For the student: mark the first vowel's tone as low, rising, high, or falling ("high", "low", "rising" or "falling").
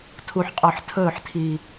low